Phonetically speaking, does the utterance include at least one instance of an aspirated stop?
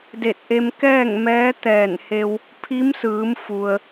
yes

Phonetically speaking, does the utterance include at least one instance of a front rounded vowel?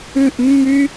yes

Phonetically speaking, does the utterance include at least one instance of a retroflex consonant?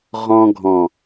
no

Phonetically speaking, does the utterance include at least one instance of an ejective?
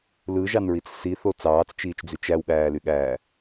no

